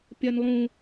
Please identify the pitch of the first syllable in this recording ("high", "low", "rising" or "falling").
high